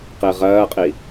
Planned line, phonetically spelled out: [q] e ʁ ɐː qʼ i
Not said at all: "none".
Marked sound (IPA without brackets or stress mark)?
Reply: q